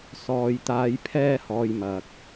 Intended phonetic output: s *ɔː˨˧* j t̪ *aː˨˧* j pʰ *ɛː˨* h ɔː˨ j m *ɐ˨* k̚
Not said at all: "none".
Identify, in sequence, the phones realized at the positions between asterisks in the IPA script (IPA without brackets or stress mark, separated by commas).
ɔː˨, aː˨˧, ɛː˧, ɐ˨